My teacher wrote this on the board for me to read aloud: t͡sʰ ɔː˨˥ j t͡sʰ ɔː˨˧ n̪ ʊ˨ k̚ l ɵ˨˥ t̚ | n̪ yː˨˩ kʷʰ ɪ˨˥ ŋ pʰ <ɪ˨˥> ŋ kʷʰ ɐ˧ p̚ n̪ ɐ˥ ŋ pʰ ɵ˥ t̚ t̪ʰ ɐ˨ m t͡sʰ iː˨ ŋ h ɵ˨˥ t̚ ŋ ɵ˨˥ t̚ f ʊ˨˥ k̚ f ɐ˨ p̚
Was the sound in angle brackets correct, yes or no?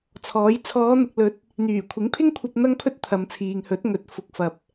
no